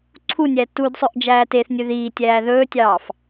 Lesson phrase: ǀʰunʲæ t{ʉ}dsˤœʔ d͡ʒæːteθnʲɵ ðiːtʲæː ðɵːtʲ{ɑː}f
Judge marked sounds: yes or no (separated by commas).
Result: no, yes